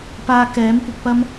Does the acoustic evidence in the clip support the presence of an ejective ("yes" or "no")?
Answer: no